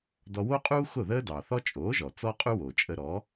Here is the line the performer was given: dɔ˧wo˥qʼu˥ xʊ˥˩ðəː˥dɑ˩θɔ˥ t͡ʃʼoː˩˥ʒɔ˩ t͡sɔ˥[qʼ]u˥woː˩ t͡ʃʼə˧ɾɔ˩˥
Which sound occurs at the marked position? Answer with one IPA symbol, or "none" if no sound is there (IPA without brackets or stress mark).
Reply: qʼ